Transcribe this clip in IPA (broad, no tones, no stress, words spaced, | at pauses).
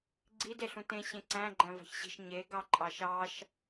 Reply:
ɡ͡ǀid eɬũtẽ ɕẽǀæ̃ ɡ͡ǃæ̃vɑ̤çɕi̤ʃ ɲe ɡɑǃʼɑʃɑʃ